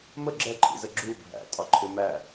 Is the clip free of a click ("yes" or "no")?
no